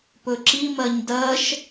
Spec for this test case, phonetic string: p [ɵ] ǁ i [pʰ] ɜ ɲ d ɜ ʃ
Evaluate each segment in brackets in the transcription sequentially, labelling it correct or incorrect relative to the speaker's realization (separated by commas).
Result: correct, incorrect